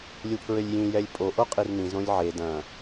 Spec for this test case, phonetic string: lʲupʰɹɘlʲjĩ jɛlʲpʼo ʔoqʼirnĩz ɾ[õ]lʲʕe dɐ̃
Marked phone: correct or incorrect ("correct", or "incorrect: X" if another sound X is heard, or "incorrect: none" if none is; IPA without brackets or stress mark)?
correct